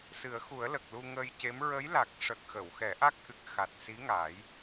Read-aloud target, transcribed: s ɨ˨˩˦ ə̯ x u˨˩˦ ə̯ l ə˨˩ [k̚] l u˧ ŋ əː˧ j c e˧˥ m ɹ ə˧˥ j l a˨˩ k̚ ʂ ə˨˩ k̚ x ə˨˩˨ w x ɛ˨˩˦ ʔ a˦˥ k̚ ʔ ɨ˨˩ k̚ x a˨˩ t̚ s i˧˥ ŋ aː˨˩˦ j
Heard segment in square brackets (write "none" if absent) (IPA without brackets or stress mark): k̚